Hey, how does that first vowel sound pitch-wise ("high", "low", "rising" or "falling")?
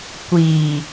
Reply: low